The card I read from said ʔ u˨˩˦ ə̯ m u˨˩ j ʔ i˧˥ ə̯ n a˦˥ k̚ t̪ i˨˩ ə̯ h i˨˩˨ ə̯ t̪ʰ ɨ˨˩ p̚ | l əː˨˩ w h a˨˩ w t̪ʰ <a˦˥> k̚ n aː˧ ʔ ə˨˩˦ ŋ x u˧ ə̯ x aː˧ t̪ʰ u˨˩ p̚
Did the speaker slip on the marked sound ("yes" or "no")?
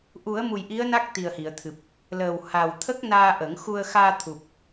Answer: yes